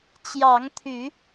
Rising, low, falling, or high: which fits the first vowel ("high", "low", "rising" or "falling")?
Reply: rising